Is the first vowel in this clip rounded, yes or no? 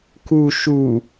yes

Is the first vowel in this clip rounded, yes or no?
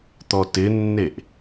yes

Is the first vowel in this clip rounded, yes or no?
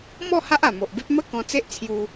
yes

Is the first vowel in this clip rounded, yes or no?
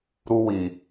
yes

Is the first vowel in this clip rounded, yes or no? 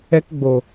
no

